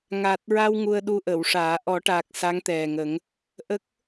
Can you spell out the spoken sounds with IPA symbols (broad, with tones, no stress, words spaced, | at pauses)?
ŋa˨˩t̚ɹa˧w ŋu˧ə̯ɗu˧ʔə˨˩˨wʂaː˨˩˦ ʔɔ˨˩˦ʈaː˨˩k̚ sa˧˥ŋt̪ɛ˨˩ŋə˨˩˦ŋ | ʔə˦˥k̚